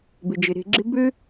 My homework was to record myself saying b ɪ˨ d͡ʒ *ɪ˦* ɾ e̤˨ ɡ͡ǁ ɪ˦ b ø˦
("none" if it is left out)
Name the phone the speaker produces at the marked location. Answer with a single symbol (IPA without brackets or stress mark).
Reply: ɪ˨